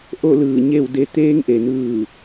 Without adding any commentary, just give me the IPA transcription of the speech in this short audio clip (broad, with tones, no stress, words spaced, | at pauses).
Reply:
ʔo˥˨lɯː˧˩ ɲe˥˨w de˧˥ t̪eː˧˥ŋʔe˩nɯː˧˩